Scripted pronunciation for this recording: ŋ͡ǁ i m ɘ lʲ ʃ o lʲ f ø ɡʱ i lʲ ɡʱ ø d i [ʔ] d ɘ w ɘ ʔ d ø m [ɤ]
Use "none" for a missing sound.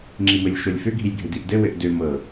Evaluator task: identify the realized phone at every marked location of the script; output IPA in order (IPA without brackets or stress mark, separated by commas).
ʔ, ɤ